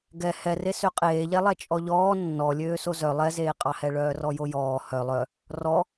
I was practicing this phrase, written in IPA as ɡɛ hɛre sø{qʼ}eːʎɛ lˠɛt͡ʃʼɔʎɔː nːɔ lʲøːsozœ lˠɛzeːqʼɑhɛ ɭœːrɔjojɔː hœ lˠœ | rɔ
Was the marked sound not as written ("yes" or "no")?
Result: no